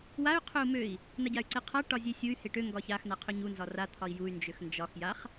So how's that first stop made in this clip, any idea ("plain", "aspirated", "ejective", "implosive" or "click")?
aspirated